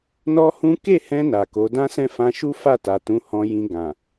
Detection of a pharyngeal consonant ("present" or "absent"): absent